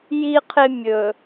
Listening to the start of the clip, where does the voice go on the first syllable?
high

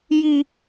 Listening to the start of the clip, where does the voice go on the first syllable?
low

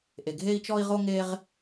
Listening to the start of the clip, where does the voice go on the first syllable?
low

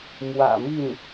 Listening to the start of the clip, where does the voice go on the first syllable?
low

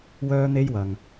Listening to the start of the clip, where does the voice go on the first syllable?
high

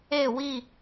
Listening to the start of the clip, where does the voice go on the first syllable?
falling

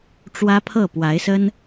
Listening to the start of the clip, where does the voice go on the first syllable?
high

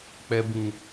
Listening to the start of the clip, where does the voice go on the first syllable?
low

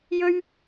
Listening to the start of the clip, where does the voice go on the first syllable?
high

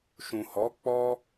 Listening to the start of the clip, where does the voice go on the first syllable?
low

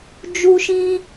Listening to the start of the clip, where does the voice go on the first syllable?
high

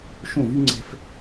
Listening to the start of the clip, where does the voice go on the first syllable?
falling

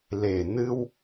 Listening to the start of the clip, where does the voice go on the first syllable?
low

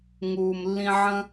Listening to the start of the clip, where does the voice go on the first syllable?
low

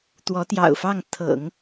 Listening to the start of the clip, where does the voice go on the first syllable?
rising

